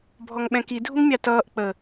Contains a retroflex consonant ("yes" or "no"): no